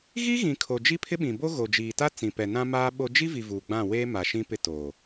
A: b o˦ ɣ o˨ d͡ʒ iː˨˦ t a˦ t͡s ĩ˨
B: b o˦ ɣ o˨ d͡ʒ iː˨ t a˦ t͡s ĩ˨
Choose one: B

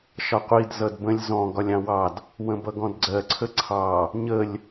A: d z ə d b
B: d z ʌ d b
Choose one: B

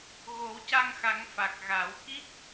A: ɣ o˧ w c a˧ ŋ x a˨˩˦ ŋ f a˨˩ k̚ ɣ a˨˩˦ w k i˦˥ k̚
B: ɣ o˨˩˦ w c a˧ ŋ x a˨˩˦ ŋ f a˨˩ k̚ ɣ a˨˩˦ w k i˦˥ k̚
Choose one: B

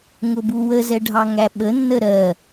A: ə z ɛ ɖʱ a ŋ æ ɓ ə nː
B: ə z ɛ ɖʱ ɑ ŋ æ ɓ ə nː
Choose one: B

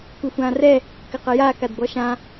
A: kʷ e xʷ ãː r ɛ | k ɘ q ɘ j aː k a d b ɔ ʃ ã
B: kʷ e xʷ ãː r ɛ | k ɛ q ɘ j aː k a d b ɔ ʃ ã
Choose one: A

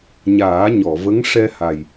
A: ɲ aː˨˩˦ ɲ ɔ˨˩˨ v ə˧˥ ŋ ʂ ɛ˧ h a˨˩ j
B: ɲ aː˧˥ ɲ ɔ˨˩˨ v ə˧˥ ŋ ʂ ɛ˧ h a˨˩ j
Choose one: A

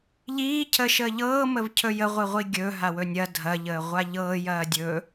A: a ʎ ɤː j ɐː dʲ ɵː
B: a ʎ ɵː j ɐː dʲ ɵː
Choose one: A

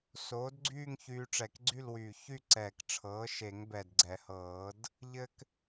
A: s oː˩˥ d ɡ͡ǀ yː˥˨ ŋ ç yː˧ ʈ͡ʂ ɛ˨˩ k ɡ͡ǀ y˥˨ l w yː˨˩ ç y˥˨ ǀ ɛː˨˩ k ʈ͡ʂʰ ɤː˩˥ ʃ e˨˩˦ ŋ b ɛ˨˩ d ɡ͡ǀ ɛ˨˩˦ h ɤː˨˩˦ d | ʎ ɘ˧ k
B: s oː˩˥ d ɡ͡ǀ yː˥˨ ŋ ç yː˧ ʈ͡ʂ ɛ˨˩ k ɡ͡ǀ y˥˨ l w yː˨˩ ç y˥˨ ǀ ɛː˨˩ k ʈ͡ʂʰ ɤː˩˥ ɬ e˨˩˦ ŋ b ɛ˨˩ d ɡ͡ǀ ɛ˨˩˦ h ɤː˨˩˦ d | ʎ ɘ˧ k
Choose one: A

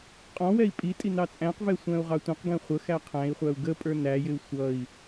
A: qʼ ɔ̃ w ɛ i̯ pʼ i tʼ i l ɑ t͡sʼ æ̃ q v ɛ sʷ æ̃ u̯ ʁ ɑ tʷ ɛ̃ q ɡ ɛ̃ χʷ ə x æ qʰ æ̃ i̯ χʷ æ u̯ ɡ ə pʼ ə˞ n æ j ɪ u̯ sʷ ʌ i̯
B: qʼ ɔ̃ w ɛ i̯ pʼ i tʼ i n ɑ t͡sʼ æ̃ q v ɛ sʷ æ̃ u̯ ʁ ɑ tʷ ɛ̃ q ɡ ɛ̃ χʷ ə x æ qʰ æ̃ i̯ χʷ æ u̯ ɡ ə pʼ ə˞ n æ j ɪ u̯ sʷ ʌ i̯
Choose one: B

